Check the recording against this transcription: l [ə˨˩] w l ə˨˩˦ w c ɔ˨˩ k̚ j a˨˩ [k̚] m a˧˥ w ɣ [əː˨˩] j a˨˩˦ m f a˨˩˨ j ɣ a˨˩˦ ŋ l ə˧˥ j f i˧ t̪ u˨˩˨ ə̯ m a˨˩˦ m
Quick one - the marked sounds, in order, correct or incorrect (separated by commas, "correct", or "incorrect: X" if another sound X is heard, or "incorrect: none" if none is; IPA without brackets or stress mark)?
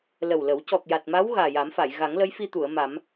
correct, incorrect: t̚, incorrect: aː˨˩